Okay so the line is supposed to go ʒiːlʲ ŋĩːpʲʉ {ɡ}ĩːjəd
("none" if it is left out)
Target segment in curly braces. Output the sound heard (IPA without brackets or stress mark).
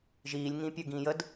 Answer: ɡ